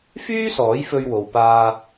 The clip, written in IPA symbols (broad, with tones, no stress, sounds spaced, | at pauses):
f yː˥ s ɔː˨˥ j f ɵ˧ ɥ w o˨ w p aː˧